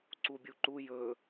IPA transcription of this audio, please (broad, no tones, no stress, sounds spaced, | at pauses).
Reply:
ǀ u bʲ u ǃ u j ɵ